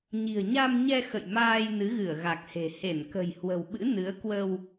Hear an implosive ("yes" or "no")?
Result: yes